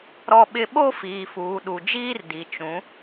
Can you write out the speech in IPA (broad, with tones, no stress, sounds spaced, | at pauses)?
ɾ ɔ˦ ɓ ɪ˦ ɓ o˦ f iː˨ f uː˨ ɗ u˨ d͡ʒ iː˦ r d i˨ t͡ʃ ũ˨˦